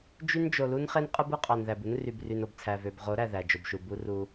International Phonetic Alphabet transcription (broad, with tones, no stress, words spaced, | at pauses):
d͡ʒy˦nd͡ʒo˨lu˦n χe˦nqʼɯ˦bɯ˦ qʼɑ˨nðæ˨bu˦nry˨b ry˨no˨b t͡sʰæ˨vø˨bʁo˨˦ɾæ˨ ðæ˨d͡ʒo˨bʃu˨ bu˦ru˦